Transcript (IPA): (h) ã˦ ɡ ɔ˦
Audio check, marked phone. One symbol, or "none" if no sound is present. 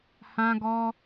h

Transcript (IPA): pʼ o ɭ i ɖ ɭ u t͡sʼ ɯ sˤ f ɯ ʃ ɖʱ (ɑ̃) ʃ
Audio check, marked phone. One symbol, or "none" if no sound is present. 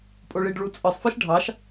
ɑ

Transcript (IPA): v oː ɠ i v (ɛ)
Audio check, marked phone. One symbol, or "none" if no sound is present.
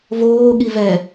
ɛ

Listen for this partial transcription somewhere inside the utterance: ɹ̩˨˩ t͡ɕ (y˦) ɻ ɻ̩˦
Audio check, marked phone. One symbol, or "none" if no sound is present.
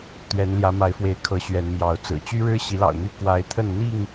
y˦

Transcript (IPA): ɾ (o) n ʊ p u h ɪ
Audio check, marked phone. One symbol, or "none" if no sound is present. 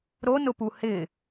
o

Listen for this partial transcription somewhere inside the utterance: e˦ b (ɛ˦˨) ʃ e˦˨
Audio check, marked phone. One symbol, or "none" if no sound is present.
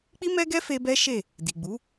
ɛ˦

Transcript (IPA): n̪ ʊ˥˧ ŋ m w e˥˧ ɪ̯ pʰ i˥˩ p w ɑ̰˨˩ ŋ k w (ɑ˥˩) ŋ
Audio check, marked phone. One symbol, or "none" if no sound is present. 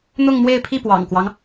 ɑ˦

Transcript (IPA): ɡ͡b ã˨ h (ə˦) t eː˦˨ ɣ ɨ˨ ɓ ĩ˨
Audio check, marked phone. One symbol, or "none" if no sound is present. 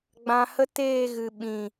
ə˦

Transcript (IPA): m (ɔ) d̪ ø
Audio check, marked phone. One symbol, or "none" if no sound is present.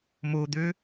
o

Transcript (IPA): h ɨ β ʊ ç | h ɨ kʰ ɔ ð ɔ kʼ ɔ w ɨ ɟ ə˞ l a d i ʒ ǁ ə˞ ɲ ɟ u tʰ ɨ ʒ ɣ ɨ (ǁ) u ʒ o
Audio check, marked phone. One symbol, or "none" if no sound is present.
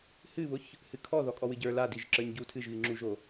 ŋ͡ǁ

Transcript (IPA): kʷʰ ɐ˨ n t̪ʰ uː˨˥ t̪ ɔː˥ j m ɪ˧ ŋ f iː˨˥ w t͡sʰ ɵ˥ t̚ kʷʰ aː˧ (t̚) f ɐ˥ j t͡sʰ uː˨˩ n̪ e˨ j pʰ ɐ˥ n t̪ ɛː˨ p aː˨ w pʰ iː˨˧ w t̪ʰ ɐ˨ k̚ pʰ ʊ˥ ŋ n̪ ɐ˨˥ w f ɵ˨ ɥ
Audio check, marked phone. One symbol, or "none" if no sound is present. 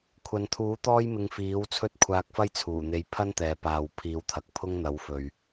k̚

